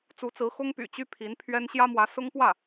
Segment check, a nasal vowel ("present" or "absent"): absent